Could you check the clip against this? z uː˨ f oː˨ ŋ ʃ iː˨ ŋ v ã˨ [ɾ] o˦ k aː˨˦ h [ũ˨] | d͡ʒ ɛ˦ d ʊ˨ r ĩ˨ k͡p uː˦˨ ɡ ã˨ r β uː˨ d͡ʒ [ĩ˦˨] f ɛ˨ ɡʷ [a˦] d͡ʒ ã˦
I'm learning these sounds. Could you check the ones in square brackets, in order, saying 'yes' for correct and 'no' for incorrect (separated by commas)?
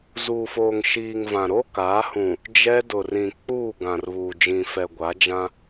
yes, yes, no, no